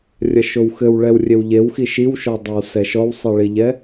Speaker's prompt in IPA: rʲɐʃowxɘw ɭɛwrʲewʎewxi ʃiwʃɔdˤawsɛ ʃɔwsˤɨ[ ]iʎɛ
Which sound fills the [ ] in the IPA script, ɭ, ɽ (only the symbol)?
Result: ɭ